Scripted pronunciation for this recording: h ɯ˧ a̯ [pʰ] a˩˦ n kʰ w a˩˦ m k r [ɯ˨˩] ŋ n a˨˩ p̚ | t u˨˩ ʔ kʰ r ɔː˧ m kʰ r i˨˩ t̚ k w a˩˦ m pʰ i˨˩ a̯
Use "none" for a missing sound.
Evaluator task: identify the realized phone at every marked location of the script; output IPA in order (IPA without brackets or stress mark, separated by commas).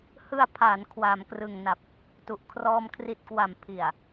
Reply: pʰ, ɯ˨˩